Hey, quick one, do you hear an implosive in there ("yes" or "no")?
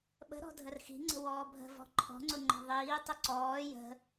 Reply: yes